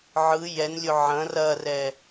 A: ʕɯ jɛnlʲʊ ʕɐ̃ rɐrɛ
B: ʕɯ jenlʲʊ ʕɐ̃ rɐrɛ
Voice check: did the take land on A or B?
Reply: A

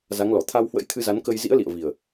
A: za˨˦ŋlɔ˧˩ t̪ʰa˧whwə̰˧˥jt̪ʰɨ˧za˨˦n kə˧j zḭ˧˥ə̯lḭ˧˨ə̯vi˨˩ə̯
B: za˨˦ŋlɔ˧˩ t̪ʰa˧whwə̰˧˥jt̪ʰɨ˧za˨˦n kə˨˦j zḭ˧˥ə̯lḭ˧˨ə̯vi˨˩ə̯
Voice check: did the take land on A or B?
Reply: A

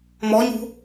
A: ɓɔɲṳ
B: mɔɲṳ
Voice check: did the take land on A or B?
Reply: B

